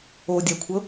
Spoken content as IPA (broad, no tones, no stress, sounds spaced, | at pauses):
o dʲ a kʷʰ ɤ